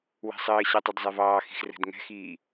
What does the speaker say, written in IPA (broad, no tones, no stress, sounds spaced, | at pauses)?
w ɛ̤ sˤ ɘː ɕ ɛ tˤ ɘ d zˤ ɛ v ɑː x i̤ x r ɛ̤ d ŋ ɛ̤ x iː